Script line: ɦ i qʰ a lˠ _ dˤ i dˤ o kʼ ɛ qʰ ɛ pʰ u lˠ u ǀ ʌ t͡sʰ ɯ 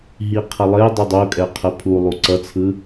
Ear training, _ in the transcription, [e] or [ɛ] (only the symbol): e